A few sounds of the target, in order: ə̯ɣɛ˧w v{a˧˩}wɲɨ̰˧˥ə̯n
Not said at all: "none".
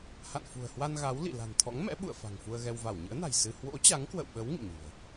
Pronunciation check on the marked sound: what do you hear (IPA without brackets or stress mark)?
a˧˩